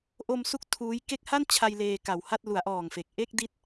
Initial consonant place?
glottal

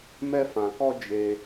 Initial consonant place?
labial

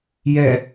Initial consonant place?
palatal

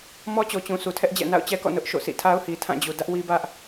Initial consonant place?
labial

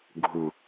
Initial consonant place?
velar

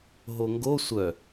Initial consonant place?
glottal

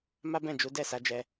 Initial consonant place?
labial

